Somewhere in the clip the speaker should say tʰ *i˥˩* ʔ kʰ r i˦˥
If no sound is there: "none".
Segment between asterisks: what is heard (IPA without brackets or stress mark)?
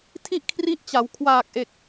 i˥˩